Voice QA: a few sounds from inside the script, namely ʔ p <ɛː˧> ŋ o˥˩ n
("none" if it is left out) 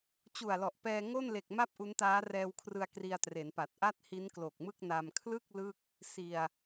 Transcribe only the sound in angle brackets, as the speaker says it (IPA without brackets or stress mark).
ɛː˧